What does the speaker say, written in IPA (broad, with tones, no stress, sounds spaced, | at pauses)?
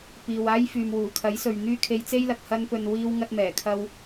p iː˨ w aː˥ j f yː˨ m w uː˨˩ kʰ ɐ˨˥ j s ɵ˨ ɥ n̪ yː˥ kʰ e˧ j t͡s e˥ j l ɐ˨ k̚ h ɐ˧ n p ɵ˨ n w iː˧ w ŋ ɐ˧ t̚ m ɛː˨˩ kʰ ɐ˧ w